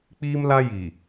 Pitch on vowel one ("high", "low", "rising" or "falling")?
high